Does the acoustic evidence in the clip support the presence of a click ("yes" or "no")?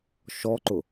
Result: yes